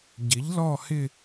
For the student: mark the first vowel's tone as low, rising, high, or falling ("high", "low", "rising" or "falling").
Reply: rising